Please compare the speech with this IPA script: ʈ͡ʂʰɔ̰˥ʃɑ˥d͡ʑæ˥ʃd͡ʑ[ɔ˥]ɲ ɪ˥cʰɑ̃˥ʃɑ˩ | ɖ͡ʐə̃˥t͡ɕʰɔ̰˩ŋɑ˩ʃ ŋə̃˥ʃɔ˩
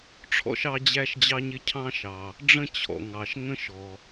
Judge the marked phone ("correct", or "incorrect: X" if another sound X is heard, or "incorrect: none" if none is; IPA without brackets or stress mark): incorrect: ɑ˥